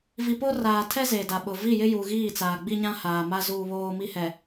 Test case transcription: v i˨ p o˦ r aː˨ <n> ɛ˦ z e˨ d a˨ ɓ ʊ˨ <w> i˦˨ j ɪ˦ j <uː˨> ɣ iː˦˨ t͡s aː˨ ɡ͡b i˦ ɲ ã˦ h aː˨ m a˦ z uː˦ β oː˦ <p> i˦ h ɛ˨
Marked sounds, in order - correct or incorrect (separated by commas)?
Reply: incorrect, incorrect, incorrect, incorrect